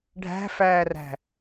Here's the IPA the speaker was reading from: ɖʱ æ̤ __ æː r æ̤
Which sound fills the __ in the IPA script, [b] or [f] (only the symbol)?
f